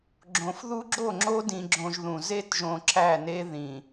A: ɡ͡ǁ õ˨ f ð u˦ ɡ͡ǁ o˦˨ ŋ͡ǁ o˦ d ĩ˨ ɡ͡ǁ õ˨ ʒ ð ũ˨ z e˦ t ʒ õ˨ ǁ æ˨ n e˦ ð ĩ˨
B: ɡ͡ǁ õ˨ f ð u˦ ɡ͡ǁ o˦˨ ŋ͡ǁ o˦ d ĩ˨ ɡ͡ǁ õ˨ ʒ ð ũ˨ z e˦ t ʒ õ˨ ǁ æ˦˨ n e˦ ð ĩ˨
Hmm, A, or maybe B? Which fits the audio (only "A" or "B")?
B